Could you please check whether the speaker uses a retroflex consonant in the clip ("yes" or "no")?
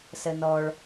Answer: yes